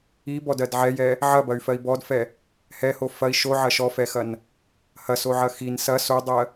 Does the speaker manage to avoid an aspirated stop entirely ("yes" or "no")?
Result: yes